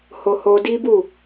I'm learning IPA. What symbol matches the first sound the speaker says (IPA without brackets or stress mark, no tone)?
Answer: h